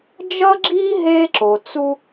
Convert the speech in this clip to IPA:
d͡ʒ ʌ˦ ɡ͡ǁ i˦ ɦ e˦ ǁ o˨ t͡s u˦

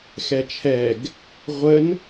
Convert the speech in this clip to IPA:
x ɛ t͡ʃʰ ɛ ɡ | ʁʷ ə n

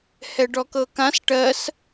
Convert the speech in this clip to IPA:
h ɛ ɖ ɔ k ɤ k ã s ʈ ɜ s

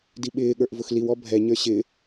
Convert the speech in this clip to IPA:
d i ɓ ɪː ɠ ə˞ ʔ v ʊ x l i w ɔ bʱ ɛ ɲ ə˞ ɕ ɪ

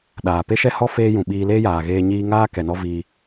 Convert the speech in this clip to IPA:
ɗ aː˨ p e˦ ʃ ɛ˦ h ɔ˦ f eː˦ j ũ˨ ɓ iː˧ l eː˦ j aː˨ ɣ eː˧ ɲ iː˧ ŋ aː˦ k ɛ˨ n ɔ˦ v iː˧

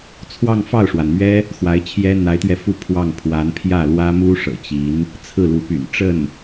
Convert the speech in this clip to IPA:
t͡sʰ w ɑ˥˧ ŋ f ɑ˥˩ ʊ̯ ʂ w a˩ n m ɥ ɛ˥ | x w a˧˥ ɪ̯ t͡ɕʰ j ɛ˥ n̪ a˧˥ ɪ̯ t̪ ɥ ɛ˧ f u˥˧ pʰ w ɑ˥˩ ŋ pʰ w a˧˥ n pʰ j ä˥˩ l w ä˥ m u˥ ʂ ɤ̰˨˩ t͡ɕ i˧˥ n | t͡sʰ ɹ̩˥˩ l u˧˥ p y̰˨˩ n ʈ͡ʂ ə˥˩ n

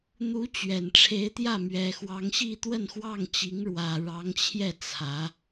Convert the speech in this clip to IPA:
n̪ u˧˥ t͡ɕ ɥ ɛ˨˩ n ʈ͡ʂʰ e˧˥ ɪ̯ t̪ j ä˥˩ m ɥ ɛ˨˩ x w ɑ˧˥ ŋ ɕ i˥˧ t̪ w ə˥˧ n x w ɑ˥˩ ŋ t͡ɕ i˧˥ ŋ ɻ w ä˨˩ ɻ ɑ˧˥ ŋ t͡ɕʰ j ɛ˥˩ t͡sʰ ä˧˥

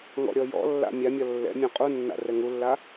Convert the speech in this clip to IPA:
ŋ ɔ̰ ɾʲ ɔ j ɔ̰ lː a̰ mʲ a mʲ ɒ lː ɛ̰ mʲ ɔ̃ qʼ u nː a̰ r ɛ ŋ u lː a

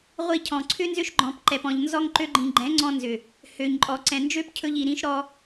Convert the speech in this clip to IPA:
ʁʷ i˧ cʰ ɔ̃˨ ǀʰ ʏ˦ n z ʏ˦ ʃ ɡ͡ǃ ɔ̃˧ p ǃ ɛ˨ p ɔ̃˨ ʎ n z ɔ˧ ŋ ǃ ø˧ ɡ͡ǃ ĩ˨ ɡ͡ǃ ɛ̃˨˦ ŋ͡ǀ ɔ̃˧ n z ʏ˨ | h ø˨ ɲ ǃʼ ɔ˨ ǀ ɛ̃˨ n d͡ʒ ø˦ p cʰ ɵ˧ ʎ i˨ ɾ ĩ˦ ʃ ɾ ɔ˦

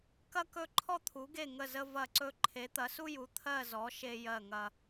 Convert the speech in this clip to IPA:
k ɐ˦ k ɵ˦˨ ǃʰ ɔ˦ t̪ʰ u˨˦ ɡ e˦˨ ŋ ə˦˨ z ə˦ v ɐ˦˨ ǀ ɵ˦ ǃʰ e˨˦ t̪ ɐ˨˦ s u˦ j u˨˦ t̪ʰ ɜ˦˨ z ɔ˨˦ ʃ e˦ j ɜ˦˨ ŋ ɐ˦

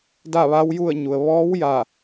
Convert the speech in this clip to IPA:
d a˥˨ ʋ a˧˥ w j u˥˨ ə̯ ɲ u˩ ə̯ ʋ ɔː˧˥ w j a˧˩

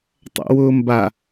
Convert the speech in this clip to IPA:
tˤ a̰ w ʊː m b a

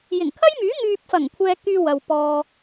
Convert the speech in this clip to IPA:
j ɪ˨˩ ŋ kʰ ɐ˥ j m yː˨˥ ŋ yː˨ p̚ f ɐ˨˩ ŋ kʷʰ ɛː˧ k yː˧ w ɐ˨ w p ɔː˧

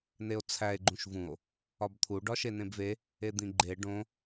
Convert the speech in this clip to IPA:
n e o̯ t͡sʰ æ e̯ ɡ͡ǃ ũ ʃ v ũ o̯ | ɒ b t̪ʰ u ɖ ɒ ʃ e n ẽ b v e | e d̪ ĩ ɡ͡ǃ e ɖ õ

